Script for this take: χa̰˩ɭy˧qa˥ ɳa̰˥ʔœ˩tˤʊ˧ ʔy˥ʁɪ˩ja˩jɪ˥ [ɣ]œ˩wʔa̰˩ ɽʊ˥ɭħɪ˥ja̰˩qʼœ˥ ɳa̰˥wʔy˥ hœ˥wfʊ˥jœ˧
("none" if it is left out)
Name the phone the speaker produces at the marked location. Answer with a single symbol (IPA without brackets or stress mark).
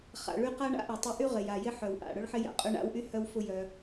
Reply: ħ